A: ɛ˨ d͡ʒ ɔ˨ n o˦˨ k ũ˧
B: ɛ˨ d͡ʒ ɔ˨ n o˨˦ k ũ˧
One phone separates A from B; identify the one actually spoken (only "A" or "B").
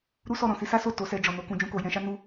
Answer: B